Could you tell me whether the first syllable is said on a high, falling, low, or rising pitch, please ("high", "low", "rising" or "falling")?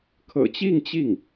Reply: low